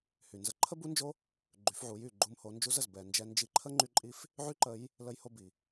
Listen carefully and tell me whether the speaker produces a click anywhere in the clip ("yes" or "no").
yes